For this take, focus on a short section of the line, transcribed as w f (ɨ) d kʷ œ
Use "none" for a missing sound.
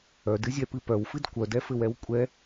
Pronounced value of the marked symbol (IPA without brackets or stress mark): ɨ